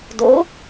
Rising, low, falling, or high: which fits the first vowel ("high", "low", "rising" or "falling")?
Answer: rising